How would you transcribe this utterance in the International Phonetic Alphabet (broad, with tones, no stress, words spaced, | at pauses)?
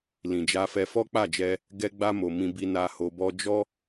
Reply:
lĩ˨d͡ʒa˧fɛ˧ fɔ˦k͡pa˦˨d͡ʒɛ˧ | ɡɛ˧ɡ͡ba˧mo˨ mĩ˧bi˧na˧ ho˧bɔ˦ d͡ʒɔ˦